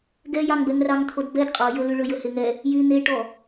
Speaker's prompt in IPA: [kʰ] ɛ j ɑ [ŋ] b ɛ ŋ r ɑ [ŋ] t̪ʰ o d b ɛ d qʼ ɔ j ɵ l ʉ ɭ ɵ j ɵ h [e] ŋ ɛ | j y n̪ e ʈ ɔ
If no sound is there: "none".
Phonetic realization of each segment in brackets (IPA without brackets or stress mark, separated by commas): ɡ, ŋ, ŋ, e